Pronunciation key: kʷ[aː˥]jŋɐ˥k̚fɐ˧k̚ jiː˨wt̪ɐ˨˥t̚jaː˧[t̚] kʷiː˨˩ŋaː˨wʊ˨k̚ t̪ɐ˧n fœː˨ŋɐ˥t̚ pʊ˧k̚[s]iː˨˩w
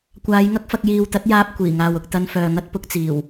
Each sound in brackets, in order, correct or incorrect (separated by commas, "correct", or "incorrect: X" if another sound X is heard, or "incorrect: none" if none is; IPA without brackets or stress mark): incorrect: aː˨˧, incorrect: p̚, incorrect: t͡s